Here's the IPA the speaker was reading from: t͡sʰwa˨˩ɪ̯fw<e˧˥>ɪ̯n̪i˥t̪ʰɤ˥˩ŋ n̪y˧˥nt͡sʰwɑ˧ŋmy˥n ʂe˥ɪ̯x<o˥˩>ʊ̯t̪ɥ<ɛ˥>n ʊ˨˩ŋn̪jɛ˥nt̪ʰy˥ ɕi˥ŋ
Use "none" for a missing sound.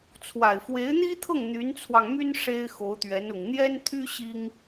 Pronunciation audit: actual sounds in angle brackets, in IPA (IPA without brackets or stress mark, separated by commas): e˧˥, o˧˥, ɛ˧˥